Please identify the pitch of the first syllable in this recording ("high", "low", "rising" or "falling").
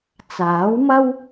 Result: rising